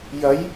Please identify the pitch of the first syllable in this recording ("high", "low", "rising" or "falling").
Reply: rising